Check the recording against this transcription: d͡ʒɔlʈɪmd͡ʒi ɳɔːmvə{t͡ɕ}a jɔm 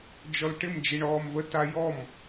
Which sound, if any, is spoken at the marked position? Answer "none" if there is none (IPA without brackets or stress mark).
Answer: t